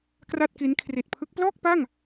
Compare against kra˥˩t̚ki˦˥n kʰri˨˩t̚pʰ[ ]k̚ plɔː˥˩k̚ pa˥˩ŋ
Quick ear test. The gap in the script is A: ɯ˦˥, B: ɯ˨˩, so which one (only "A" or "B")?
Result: A